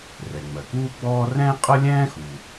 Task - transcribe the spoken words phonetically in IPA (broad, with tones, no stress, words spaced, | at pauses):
rɛ˩ŋ͡mɜ˩kuː˥ɡ͡bɔː˥ rɛ̃ː˥qʼɤ˥lʲɛ̃ː˥xuː˩